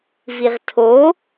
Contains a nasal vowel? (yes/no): no